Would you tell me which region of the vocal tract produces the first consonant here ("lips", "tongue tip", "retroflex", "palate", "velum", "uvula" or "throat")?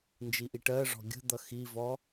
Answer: tongue tip